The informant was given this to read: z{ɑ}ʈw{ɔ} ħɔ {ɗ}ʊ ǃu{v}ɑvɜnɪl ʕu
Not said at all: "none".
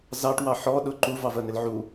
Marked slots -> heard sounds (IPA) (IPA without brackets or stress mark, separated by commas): ɑ, ɑ, ɗ, v